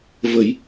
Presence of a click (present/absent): absent